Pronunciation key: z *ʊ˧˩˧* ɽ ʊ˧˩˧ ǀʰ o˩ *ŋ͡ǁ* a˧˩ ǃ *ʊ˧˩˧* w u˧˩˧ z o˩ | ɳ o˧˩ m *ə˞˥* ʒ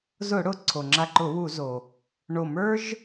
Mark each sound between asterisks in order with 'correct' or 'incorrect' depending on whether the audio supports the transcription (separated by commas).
correct, correct, correct, correct